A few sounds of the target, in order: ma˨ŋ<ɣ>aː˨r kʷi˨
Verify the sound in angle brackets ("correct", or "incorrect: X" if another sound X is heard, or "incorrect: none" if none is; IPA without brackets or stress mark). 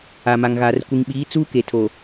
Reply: correct